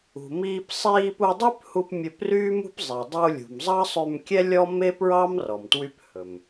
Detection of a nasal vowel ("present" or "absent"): absent